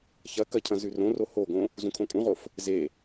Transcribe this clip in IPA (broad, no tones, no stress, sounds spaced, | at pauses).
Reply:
ç ɐ k ɐ cʰ ɐ̃ z ʉ r õ r o h o ɡ õ | z ũ kʰ õ kʼ ũ ʁ o f | z e